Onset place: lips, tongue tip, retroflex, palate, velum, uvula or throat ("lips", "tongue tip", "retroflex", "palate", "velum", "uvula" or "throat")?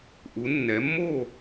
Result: throat